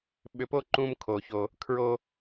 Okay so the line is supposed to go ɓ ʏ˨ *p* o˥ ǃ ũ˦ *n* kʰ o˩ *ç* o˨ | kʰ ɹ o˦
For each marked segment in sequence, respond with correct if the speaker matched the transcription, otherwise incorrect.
correct, incorrect: m, correct

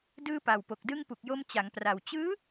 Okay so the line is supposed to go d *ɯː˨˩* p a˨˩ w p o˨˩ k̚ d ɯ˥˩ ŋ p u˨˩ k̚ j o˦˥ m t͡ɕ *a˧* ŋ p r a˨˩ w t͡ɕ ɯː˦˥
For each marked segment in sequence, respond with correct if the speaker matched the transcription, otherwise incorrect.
incorrect: ɯː˥˩, incorrect: a˩˦

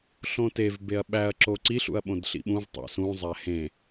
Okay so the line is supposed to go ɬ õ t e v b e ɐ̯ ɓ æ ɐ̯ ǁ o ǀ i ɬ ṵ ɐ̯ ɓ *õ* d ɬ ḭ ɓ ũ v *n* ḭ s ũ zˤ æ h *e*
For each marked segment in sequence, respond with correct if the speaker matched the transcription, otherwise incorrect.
correct, incorrect: tˤ, incorrect: ẽ

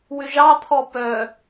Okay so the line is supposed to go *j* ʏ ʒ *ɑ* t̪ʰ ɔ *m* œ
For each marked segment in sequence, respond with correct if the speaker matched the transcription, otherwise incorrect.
incorrect: w, correct, incorrect: p

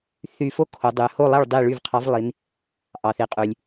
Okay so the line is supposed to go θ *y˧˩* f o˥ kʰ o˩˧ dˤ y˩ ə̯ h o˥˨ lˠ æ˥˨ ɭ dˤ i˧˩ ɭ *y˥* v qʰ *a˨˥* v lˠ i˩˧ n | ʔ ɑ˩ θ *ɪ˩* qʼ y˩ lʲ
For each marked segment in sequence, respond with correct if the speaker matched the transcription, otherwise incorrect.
correct, incorrect: y˧˩, incorrect: ɑ˨˥, incorrect: i˩

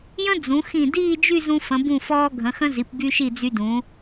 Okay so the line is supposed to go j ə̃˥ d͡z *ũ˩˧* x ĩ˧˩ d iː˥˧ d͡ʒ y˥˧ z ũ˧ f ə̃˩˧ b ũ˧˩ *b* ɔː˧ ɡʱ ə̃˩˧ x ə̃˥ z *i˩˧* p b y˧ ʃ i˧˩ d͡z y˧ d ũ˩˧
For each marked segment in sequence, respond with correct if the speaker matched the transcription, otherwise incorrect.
correct, incorrect: f, correct

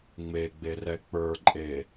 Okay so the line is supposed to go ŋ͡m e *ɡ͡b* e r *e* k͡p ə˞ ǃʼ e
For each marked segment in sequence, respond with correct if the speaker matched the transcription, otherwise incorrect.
correct, incorrect: ɛ

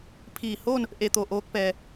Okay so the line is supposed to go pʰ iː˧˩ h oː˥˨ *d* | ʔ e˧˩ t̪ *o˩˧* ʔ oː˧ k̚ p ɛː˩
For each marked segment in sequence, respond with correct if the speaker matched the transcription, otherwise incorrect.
incorrect: n, incorrect: o˧˩

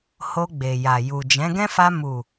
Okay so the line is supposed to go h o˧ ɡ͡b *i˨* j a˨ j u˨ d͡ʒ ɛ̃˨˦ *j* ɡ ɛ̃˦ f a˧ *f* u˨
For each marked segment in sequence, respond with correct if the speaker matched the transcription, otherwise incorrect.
incorrect: e˨, incorrect: none, incorrect: m

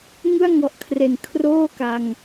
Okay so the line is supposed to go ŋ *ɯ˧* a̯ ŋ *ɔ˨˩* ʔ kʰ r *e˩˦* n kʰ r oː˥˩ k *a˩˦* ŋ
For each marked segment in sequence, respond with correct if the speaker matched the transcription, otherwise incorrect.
incorrect: ɯ˥˩, correct, correct, incorrect: a˧

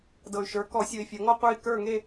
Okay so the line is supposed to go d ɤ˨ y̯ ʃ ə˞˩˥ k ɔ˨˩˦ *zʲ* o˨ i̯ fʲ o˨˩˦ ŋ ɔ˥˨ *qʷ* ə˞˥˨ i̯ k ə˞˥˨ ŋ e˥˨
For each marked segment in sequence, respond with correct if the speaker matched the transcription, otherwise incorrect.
incorrect: sʲ, correct

